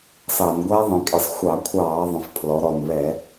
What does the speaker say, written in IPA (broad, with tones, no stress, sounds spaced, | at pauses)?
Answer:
s ɑ˧˩˧ n ɡʷ æ˦˥ ðˤ ĩ˩˧ kʼ ɪ˧˩˧ sˤ xʷ ɑ˧˩˧ kʷʰ ɑː˧˩˧ ðˤ ə̃˩˧ f pʰ l ɔ˩˧ ɾ ɔ˨˩ n β ɛ˧˩˧